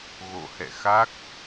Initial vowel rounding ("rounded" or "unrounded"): rounded